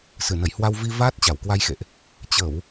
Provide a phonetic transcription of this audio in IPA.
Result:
sɨ˧˩nə˧˩jhwa˧w vi˧ vaː˦˥t̚t͡ɕa˧˩wkwa˧jxḛ˧˨ʔ | t͡ɕə˧˩˨w

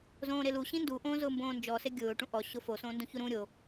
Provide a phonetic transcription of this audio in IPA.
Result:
zõːɾelu ɕĩndu ʔõːzʊːmbõːnd͡ʒɔ seɡʲʊː ʈũʔɔ ɕʊfo sõːndũçuɾũ ɾʲo

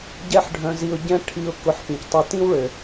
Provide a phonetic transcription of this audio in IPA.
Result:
ɟɛ˥ħɖʱœ̃˧zi˧ʊ̯ɟɛ̃˥ ʈʰi˧ʊ̯ kʊ˧ħ pĩ˩ctˤœ˧tĩ˥wɭø˩

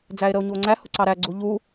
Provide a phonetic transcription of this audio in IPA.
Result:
d͡zæe̯ɾəo̯ɲuo̯ŋ͡ǀæ hʊǀɑɾæ ɡ͡ǀuʎu

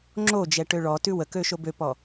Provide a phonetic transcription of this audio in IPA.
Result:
ŋ͡ǁo d͡ʒɛʈøɭɔtʉ wəkø ʃobøpɔ

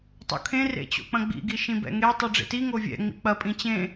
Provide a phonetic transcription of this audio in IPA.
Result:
tˤo̰kʰẽ rḛt͡ɕo̰k͡pɐ̃ɡ͡bḭ ɡiʃĩbɛ̰ŋe tˤiɖ͡ʐḛti ŋovʲɛ̰ ŋ͡mḭk͡pɐ pʼĩt͡ɕẽ

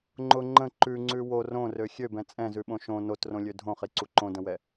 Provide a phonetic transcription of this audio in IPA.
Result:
ŋ͡ǃʊ ŋ͡ǃə̃ ǃʉŋ͡ǀʉ wo rõrø xʲøbɛ̃ t͡sʼɛ̃zʉɓõ ʃõ notrõlʲø dʱõχiǀu ǃõdə̃wɛ

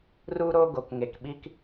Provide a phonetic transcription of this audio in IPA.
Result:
ru˦ɾo˦ ɡo˨kŋe˨kɓi˦k

